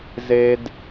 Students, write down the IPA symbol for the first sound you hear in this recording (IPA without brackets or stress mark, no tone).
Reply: z